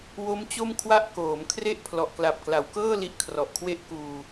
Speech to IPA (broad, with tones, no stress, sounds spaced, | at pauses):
w o˦˥ m t͡ɕ o˥˩ m kʰ w a˥˩ ʔ k oː˩˦ m kʰ r e˥˩ ʔ pʰ l ɔ˨˩ ʔ k l a˨˩ p̚ k l a˩˦ w k ɤː˥˩ l i˦˥ ʔ kʰ r ɔ˨˩ ʔ kʰ w e˥˩ ʔ k uː˧